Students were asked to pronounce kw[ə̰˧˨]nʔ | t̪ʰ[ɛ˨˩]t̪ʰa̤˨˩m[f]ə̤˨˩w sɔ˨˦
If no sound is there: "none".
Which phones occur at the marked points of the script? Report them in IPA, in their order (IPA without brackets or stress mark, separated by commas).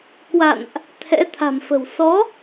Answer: a̰˧˨, ɛ̰˧˥, f